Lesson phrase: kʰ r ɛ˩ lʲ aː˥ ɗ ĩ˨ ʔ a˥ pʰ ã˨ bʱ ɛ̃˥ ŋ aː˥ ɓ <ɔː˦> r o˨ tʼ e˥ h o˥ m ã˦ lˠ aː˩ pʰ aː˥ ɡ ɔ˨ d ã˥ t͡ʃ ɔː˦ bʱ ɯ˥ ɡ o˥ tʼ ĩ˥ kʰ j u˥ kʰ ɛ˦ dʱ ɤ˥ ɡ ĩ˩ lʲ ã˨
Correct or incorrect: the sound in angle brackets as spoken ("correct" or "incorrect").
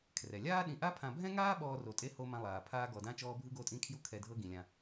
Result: correct